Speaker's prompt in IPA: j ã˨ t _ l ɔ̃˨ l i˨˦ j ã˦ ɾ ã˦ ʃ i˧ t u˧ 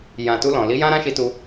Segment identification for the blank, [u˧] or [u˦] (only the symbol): u˧